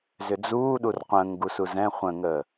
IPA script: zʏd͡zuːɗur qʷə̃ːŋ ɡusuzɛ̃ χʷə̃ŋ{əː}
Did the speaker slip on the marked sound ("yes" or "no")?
no